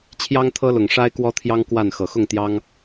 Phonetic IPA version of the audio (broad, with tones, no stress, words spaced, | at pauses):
t͡ɕʰjɑ˦ŋt̪ʰɤ˦lʊ˨˩ŋ ʂa˦ɪ̯kwɔ˦t̪ʰjɑ˦ŋ kwa˥˨n xɤ˨˩xʊ˥˨ŋt̪jɑ˦ŋ